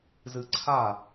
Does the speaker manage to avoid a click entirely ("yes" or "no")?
no